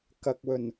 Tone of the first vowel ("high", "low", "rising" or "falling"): low